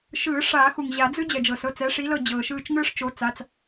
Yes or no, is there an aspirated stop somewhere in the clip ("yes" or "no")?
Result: no